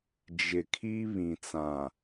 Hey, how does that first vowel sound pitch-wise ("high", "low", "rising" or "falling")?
low